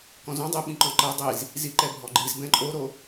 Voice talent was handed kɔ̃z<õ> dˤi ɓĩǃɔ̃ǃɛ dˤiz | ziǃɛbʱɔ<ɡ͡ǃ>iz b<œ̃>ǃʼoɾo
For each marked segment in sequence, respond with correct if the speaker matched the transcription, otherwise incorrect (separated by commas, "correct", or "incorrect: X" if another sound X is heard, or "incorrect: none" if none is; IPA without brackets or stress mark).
correct, correct, incorrect: ɛ̃